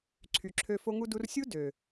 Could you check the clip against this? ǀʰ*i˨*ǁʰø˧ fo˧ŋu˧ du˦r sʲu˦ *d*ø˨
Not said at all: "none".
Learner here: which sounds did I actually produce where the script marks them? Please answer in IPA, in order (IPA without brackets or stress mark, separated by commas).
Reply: y˨, d